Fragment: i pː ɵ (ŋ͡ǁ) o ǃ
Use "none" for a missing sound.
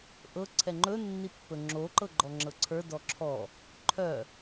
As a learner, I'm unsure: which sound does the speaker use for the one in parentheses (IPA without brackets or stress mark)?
ŋ͡ǁ